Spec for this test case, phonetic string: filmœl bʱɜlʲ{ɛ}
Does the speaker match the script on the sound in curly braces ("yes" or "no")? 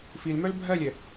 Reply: yes